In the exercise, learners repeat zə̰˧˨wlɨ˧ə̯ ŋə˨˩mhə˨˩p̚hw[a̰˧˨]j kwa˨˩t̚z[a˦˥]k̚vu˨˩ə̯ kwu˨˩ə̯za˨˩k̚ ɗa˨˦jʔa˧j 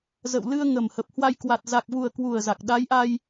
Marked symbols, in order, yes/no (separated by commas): no, no